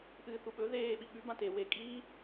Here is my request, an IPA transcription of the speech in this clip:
ʔɨːθuɓɵ ðeː ɓiɓʉ bãte we kʼiː

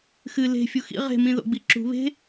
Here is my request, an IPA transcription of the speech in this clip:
xɨ le̤ fʲuxḭ ʁe̤ mĩðo̰ɡ͡biǁṳ βe̤

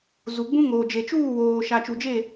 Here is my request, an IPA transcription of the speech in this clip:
zu˨ɡ͡bũ˦ ŋoː˨d͡ʒe˨t͡ʃuː˦˨ woː˨ ʃa˨t͡ʃu˨d͡ʒe˦˨

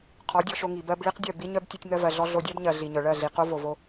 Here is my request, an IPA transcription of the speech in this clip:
qʰɔ˨˦dʲɔ˧ʃo˧ ŋi˨bɜ˧b ɭi˦qdʲœ˦˨ bi˦ɲœ˦b tʲo˧tʲŋɜ˧vɜ˨ɮɔ˧ ɮo˧dʲɜ˦bɲɜ˨ ɮi˨ɲœ˨ɭɜ˦˨ɮi˨ qo˦vo˨vo˧

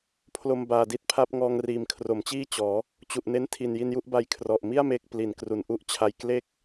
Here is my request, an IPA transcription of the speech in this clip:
pʰlo˧mbaː˨˩di˥˩t̚pʰa˥˩p̚ ŋɔː˧ŋriː˨˩mkʰro˩˦mt͡ɕiː˥˩ t͡ɕɔː˩˦ | t͡ɕu˨˩ʔne˦˥n tʰi˨˩nji˧nju˥˩ʔba˧j kʰrɔ˨˩ʔmi˥˩a̯ me˦˥k̚ pli˩˦nkru˨˩nʔu˥˩ʔt͡ɕʰa˧j kle˥˩k̚

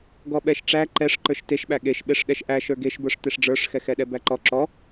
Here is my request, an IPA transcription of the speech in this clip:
ɡɔɓɛʃʈ͡ʂæ ǃɛʂ ǃə˞ʃteʃɓæ ɠeʃɓeʂ ɗɛʃʔæ ʃə˞ɡeʃbə˞ʂ teʂɖ͡ʐə˞ʂxɛxɛ ɗɛbæǃɔ ǁɔ

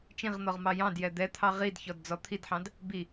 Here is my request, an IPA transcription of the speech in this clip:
t͡ʃĩʁn̪ɔʁ mɑjɑ̃djɛ d̪ɛt̪ʰɑ ʁidçɔd d͡zɔt̪ʰidħɑ̃d | bi

